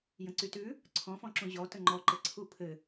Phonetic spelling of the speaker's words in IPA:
j ə̃ ǀ y t ʉ | ǀʰ ɔ̃ f ɔ̃ ǁ ũ ʑ ɔ t ə ŋ͡ǃ ɔ ǃ ɘ ǀʰ u pʰ ɘ

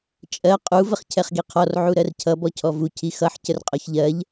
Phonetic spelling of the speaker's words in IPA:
t͡ʃʼ ɜ qʼ u v ə χ cʰ ɛ χ ɡ i qʰ ɔ r ʕ u ɾ ɜ r cʰ ʌ b ɔ cʰ ɔ v u cʰ i x ʌ ħ c ə r qʼ ɔ ç ʎ ɜ ʎ

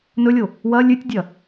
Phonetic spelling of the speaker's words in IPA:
n ɵ lʲ o | w ɐ lʲ ʉ tʲ dʲ ɐ

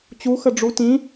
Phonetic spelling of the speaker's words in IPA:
t͡ɕ u x ə ɖ͡ʐ u t ĩ

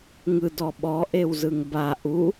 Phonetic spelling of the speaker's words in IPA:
ŋ ɯ d ɔ ɓ ɔ ʔ e w z ɯ ŋ b a ʔ u

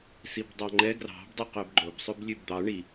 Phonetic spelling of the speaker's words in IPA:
s i b dˤ ɑ ŋ͡ǃ ɛ ɡ r ɑ̤ b dˤ i q œ b ɡ͡ǃ o b sˤ ʉ b lʲ ʉ b d̪ ɑ ɳ i

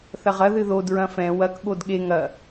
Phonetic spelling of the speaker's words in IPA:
θ ɐ ʁ ɐ ð ɨ ð o d ɹ ɐ̃ f ɛ̃ w ɐ k ɠ o d ɠ e ŋ ɐ

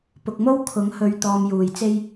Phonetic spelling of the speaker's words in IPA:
p ʊ˨ k̚ m o˥ w kʰ ʊ˨˥ ŋ h ɵ˨ ɥ t̪ ɔː˨ m j uː˨˩ j t͡s e˥ j

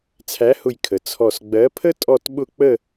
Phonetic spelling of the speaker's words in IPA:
t͡sʰ æ˨˥ h ʊ˧˩ j kʰ ə˩ t͡sʰ ɔ˧˩ s ɡ͡b ɜ˨˥ pʰ ə˥ tʼ ɔ˥˧ t ɓ ʊ˥˧ k͡p ə˥˧

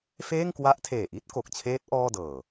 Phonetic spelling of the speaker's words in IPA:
f eː˥˩ ŋ k w a˦˥ ʔ tʰ eː˨˩ ʔ i˥˩ t̚ k o˨˩ k̚ t͡ɕʰ eː˦˥ t̚ ʔ ɔː˥˩ d ɤː˨˩

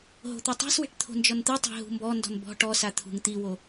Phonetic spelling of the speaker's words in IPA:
ɦ o̤ t̪ o tˤ a̤ s w e̤ ʈ t̪ʰ o̤ n d͡ʒ ɔ n t̪ ɯ tˤ e̤ ɦ ṳ m b ɔ n d ɔ̤ n b ɔ̤ ʈ ɔ s a t̪ʰ ṳ ŋ t̪ i w o

